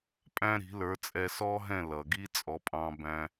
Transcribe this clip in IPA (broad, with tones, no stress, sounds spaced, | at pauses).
pʼ æ̃˥ ɾ i̤˩˥ l ə˞˩˥ t͡sʼ ɛ˧ s ɔ˥ ɦ ɛ̃˥˩ l ʌ˩ ɡ i˥ t͡sʼ ɔ˩˥ pʼ ɑ̃˧ b æ̃˧